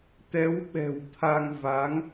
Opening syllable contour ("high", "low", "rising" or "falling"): rising